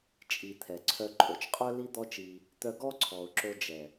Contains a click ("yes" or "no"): yes